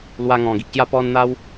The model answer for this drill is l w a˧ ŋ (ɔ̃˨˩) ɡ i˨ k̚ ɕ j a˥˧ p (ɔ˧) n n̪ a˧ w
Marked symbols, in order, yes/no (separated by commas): yes, yes